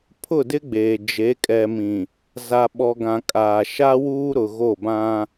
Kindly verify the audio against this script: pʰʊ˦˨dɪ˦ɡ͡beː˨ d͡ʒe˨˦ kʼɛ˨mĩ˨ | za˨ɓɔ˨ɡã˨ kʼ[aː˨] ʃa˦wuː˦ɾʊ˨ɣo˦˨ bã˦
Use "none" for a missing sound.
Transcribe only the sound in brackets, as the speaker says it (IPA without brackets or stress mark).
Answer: aː˨